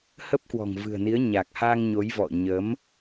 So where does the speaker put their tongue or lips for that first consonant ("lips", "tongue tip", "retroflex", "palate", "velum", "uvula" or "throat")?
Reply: throat